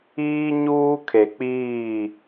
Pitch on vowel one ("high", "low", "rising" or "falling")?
high